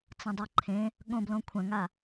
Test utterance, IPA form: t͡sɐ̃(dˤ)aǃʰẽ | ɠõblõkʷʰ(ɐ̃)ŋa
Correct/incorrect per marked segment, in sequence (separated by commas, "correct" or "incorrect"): correct, correct